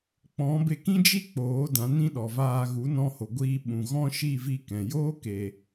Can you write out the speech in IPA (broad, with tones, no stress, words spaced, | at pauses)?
k͡pɔ̃˨˦be˧kĩ˦d͡ʒi˦ k͡poː˨˦ dã˨˦nĩ˦ɗɔ˨vaː˧ ɣu˨˦nɔ̃˧ho˨ɡʷiː˧ ɓũ˨ɣɔ̃˦ʃi˦˨ vi˧kɛ̃˨joː˦ ke˨